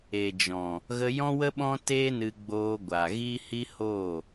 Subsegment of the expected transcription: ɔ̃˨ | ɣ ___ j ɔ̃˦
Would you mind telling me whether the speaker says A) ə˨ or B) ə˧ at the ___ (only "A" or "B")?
B